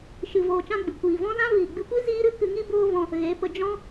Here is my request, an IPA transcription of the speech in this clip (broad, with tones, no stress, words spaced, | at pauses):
ʃɨ˧voː˧t͡ʃã˦ɡ͡bɨ˨ kʷiː˨vɔ̃˦zã˦ viː˨ɡ͡bɨ˧kʷi˦ ziː˦ɾɨ˦ kɨ˧ŋi˦ boː˦vɔ̃˧ | ɣe˨˦pə˧ d͡ʒɔ̃˦